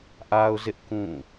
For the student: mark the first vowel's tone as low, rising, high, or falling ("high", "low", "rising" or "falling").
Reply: high